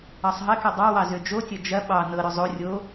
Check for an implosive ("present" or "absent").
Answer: present